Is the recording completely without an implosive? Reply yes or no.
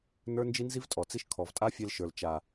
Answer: yes